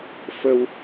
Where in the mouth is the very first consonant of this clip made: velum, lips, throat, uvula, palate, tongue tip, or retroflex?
lips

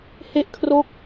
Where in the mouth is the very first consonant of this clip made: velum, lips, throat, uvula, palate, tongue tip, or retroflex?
throat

